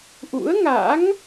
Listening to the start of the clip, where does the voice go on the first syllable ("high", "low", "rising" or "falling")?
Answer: rising